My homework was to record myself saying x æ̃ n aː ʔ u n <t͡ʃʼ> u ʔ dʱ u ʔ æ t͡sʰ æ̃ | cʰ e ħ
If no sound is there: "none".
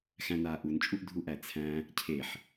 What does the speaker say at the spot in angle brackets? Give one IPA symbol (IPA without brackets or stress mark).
t͡ʃʼ